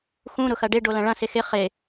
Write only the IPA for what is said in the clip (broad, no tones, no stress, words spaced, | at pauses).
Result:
xũ ɾʊxɐɖɪ ɖolɐ̃ɭɐ̃ sɪxɪ χɪ